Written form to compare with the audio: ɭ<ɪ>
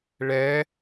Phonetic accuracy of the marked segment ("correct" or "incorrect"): incorrect